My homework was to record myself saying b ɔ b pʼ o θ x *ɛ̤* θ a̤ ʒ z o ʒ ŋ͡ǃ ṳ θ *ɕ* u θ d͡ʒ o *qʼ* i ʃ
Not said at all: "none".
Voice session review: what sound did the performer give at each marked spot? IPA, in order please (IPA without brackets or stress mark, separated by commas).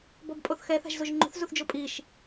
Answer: ɛ, z, pʼ